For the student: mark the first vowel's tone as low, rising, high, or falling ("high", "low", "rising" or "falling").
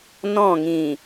falling